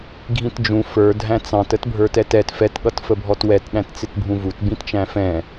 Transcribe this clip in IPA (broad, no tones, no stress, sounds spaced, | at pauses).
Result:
ɡʱ ĩ t d͡ʒ ũ f ə˞ dʱ æ̃ t͡s ɑ̃ t ə t bʱ ə˞ t ɛ t ɛ t f ɛ t ɠ ʌ t f ə bʱ ɔ t w ɛ t ɗ æ̃ t t͡s ɪ t bʱ ũ v u t b ĩ t t͡ʃ æ̃ f ɛ̃